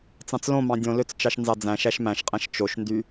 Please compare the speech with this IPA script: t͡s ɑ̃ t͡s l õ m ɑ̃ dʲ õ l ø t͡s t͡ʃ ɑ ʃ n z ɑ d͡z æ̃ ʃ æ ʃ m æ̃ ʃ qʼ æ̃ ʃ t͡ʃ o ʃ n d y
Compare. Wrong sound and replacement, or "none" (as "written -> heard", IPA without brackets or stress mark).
none